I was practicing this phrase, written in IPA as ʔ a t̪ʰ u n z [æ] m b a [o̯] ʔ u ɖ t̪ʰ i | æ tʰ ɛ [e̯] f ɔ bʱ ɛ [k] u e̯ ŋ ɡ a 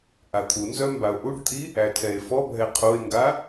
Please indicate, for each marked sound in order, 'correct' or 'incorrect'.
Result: incorrect: œ, correct, correct, incorrect: qʰ

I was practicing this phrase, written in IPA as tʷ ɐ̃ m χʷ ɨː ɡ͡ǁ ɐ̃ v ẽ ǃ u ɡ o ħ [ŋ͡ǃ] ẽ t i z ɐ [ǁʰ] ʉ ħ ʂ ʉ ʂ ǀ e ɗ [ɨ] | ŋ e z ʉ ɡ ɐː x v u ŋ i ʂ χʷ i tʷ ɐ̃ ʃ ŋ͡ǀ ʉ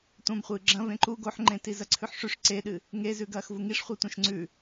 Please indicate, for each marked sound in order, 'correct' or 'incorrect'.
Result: correct, incorrect: ǀʰ, correct

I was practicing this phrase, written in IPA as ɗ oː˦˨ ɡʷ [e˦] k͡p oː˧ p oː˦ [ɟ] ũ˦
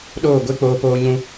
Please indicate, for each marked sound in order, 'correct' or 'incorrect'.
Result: correct, incorrect: ɲ

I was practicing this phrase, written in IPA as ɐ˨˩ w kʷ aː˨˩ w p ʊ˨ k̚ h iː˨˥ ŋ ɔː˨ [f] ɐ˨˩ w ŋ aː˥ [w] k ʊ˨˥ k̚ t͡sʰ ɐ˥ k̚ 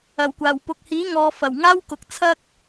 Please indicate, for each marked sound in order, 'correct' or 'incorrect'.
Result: correct, correct

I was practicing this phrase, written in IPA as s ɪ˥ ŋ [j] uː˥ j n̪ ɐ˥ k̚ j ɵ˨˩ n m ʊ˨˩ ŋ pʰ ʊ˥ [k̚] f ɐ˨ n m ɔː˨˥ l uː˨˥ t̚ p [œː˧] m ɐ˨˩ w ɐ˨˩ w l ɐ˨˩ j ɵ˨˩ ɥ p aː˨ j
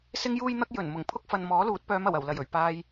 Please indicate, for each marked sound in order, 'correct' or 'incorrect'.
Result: correct, correct, incorrect: œː˨˧

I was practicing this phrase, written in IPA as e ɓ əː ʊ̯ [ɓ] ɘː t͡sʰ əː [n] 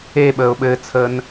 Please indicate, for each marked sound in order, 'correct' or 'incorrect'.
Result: correct, correct

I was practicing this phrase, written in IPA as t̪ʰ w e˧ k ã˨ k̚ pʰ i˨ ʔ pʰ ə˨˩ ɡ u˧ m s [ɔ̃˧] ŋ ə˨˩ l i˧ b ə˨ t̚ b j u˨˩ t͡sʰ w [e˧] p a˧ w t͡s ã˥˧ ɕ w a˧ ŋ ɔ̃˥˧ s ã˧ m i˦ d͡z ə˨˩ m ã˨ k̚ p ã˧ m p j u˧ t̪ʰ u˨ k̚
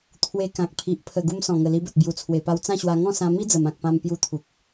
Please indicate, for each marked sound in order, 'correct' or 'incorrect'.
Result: incorrect: ɔ̃˨˩, incorrect: e˨˩

